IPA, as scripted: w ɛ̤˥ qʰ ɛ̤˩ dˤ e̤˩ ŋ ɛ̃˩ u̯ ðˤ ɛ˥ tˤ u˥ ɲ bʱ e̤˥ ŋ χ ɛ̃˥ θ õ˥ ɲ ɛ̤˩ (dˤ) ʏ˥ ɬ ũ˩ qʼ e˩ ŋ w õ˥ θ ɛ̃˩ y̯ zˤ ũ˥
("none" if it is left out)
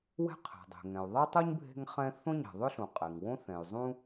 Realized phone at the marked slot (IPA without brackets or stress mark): ðˤ